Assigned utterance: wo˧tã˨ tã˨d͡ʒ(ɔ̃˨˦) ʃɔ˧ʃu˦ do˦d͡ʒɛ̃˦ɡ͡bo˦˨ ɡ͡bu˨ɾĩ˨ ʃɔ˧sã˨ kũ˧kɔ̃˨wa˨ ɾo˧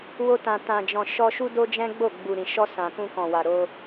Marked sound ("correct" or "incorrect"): incorrect